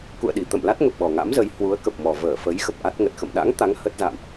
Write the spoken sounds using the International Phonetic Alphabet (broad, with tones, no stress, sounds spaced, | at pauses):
k ṵ˧˨ ə̯ ɗ i˧˩ t̪ ə̰˧˨ m l a˦˥ t̚ ŋ ə˨˩ p̚ ɓ ɔ˨˩ ŋ a̰˧˥ m z ə˨˦ j h w u˨˦ ə̯ k ə˨˩ p̚ m ɔ˨˩ v əː˧˩ f ə˨˦ j x ə˨˩ p̚ ʔ a˦˥ t̚ ŋ ə˨˩ t̚ x ə̰˧˨ m ɗ a̰˧˥ ŋ t̪ a˨˦ ŋ h ə˦˥ t̚ z a̰˧˨ m ʔ